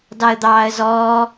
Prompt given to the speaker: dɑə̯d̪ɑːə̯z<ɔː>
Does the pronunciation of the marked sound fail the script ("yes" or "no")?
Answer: no